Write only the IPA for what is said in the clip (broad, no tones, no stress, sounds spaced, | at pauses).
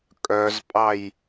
kʼ œ z pʼ ɑ j